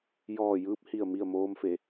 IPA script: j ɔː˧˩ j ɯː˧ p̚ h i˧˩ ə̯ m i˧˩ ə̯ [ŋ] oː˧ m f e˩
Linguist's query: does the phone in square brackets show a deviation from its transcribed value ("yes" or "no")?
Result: yes